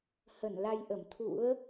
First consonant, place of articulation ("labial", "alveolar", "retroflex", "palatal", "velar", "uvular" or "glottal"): glottal